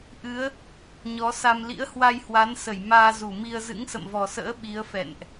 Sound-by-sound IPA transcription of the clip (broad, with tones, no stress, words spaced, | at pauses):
ʔɨ˨˦ə̯ | ɲɔ˨˦ sa˧m lḭ˧˥ə̯hwa˧jhwa˨˦nsə˧˩j maː˧zu˧˩mi˧ə̯ zɨ̰˧˥ŋsə̰˧˨mvɔ˨˩sə̰ː˧˥ ɓi˨˦ə̯fɛ̰˧˨nʔ